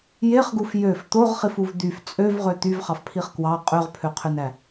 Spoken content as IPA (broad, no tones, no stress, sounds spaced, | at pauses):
j e χ ɡ u f j ø f t̪ o ʁ χ i f u v d̪ y f t͡sʼ ø v ʁ ø t̪ y v χ ɑ f pʰ i χ k w ɑ qʼ ø ʁ pʰ ø qʰ ø n æ